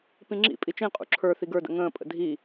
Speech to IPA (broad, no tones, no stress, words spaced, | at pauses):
pĩŋ͡ǁḭ pʼit͡ʃĩ qʼṵǁʰə˞ θiɡə˞də̰ ŋə̃ː pʼə̰dʱi